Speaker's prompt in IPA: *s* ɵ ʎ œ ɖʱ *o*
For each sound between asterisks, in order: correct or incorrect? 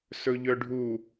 correct, incorrect: u

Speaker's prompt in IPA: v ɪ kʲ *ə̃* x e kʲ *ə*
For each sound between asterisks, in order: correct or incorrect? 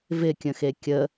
correct, correct

